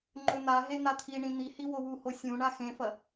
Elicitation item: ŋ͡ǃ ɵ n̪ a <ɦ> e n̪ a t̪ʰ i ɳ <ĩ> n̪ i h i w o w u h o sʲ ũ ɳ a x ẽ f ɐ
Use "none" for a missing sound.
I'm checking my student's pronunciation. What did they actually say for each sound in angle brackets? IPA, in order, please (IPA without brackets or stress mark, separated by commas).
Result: ɦ, ĩ